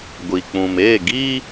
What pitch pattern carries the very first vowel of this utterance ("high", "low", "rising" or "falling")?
low